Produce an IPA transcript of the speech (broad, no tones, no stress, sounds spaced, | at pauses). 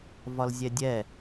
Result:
v ɒ l zʲ ɛ dʲ ɛ